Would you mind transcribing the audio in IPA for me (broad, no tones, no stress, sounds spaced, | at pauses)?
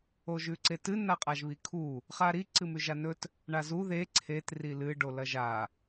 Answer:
o ʒ ʉ ǀ e t ɨ n a qʼ a ʒ β i kʰ u | χ a ɾ i ǀ ɨ m ʉ ʒ a n ɵ t | ɳ a z u ð e ǀʰ e t r i l ɨ ɖ o l ɐ ʒ a